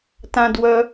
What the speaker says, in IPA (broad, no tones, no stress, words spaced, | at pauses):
tãdwœ